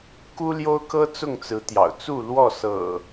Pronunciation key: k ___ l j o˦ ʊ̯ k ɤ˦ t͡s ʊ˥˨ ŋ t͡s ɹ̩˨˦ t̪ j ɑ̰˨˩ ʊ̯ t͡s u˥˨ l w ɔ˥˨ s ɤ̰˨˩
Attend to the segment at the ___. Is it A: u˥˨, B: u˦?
B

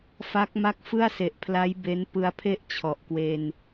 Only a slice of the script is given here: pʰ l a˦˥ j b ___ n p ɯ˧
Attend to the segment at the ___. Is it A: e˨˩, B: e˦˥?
B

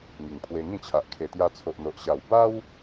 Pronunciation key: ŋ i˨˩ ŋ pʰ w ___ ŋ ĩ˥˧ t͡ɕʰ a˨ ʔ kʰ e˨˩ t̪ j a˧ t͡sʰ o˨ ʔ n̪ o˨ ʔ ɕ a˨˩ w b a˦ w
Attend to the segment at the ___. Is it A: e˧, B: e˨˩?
A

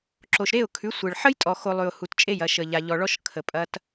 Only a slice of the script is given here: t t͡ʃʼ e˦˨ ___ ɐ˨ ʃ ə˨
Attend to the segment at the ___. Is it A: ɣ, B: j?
B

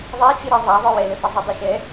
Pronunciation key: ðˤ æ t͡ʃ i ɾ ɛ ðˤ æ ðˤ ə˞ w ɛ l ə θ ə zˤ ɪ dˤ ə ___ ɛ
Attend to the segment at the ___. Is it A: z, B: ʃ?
B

